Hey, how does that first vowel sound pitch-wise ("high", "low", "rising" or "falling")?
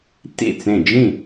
falling